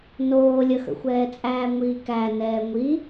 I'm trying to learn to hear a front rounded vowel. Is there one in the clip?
no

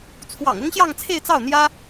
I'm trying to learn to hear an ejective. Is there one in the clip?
no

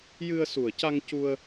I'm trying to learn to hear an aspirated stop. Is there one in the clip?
no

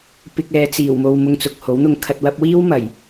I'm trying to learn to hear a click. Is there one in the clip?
no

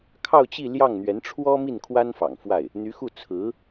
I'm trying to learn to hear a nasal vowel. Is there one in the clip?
no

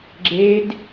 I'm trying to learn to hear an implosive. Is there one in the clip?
no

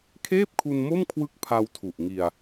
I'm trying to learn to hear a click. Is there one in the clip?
no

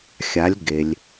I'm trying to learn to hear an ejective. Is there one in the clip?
no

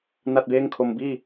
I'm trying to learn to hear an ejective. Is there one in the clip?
no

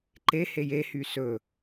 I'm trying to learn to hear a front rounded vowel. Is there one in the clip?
yes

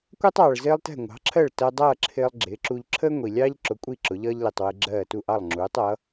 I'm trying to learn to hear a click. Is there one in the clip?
yes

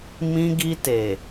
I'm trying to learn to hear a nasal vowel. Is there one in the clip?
yes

